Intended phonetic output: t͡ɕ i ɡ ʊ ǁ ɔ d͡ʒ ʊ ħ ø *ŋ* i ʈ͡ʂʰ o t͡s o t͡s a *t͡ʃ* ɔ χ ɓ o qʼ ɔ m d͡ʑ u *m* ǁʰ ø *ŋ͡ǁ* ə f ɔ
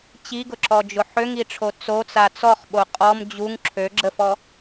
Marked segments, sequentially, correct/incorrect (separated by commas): correct, incorrect, incorrect, incorrect